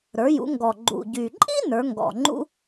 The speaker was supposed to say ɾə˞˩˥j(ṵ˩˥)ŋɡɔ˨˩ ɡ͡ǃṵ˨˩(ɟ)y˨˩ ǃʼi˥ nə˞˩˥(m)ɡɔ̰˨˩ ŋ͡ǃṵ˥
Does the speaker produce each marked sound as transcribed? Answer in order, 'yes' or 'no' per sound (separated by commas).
yes, yes, no